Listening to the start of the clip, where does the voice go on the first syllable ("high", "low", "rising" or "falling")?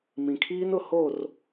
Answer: low